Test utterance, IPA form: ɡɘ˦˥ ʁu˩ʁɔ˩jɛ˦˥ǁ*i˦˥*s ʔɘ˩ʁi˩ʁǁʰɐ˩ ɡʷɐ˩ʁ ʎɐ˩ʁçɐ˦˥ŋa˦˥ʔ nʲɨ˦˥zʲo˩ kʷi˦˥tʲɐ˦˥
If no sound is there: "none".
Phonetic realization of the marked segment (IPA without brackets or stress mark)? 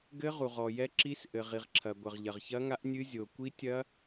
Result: i˦˥